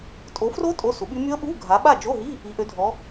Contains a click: no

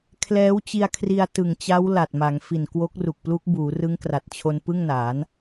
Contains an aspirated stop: yes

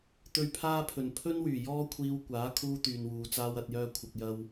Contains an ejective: no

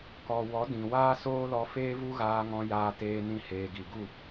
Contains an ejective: no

